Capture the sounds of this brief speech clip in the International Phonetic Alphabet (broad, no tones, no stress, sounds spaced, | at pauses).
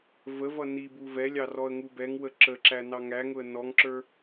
v ə v ʌ n i b u v ɛ lʲ ɑ r ɔ ə̯ ŋ u b ɛ ŋ w ə ǁ ə ǁ æ n ɑ ŋ æ ŋ ʊ ə̯ n ɔ ŋ ǁ ə˞